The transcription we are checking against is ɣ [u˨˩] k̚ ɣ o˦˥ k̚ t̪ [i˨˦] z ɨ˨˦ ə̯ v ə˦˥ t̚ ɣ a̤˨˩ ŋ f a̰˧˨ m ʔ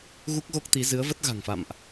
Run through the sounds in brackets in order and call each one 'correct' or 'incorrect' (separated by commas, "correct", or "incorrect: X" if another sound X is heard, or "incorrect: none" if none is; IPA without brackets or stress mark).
incorrect: u˦˥, correct